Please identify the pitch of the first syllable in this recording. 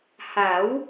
rising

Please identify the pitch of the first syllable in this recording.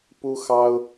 high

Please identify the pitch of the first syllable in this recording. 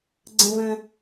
high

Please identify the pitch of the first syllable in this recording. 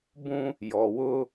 high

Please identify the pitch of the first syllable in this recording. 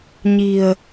low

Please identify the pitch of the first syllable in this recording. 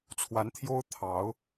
rising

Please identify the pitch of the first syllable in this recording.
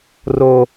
low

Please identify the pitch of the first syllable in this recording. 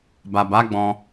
low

